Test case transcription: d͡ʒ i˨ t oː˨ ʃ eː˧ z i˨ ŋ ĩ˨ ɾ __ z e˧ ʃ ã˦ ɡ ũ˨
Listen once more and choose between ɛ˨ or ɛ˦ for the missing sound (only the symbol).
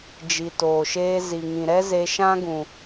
ɛ˦